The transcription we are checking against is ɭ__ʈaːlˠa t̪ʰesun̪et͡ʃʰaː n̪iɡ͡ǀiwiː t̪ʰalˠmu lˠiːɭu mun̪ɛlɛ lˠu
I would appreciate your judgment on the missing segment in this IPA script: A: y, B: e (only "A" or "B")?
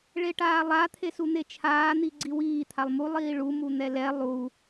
B